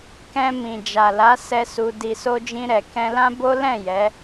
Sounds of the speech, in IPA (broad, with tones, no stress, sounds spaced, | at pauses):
k ɛ̃˧ m ĩ˨ d͡ʒ a˨ l a˨˦ s ɛ˦ s u˧ d i˨ s o˧ d͡ʒ ĩ˧ ɾ ɛ˨ k ɛ̃˧ l ã˦ b o˦ l ɛ̃˦˨ j ɛ˨˦